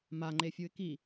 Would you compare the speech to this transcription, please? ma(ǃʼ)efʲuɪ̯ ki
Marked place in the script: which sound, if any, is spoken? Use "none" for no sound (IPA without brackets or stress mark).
ŋ͡ǃ